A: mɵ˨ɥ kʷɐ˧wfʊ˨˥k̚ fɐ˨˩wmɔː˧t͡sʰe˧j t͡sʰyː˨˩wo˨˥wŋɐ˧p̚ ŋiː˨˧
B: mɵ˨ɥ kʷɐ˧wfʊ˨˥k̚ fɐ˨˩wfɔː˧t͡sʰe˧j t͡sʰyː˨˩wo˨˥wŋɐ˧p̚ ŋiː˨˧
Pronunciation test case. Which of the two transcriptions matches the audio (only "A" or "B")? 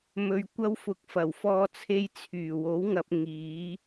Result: B